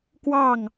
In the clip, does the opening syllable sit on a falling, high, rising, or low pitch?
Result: falling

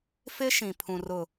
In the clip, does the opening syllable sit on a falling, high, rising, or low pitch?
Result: high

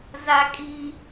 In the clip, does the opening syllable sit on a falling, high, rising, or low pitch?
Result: high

